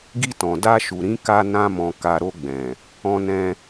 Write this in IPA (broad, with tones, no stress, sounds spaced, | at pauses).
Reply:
ɡ i˧ t ɔ̃˨ d a˧ ʃ u˨ ɾ ĩ˨˦ k a˧ n ã˧ m ɔ̃˨ k a˨ ɾ o˧ ɡ͡b ɛ̃˨ | ɔ̃˧ n ɛ̃˧